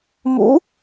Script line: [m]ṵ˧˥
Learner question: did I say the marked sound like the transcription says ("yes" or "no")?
yes